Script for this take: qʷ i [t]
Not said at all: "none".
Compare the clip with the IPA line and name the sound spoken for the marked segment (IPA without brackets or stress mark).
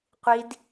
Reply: d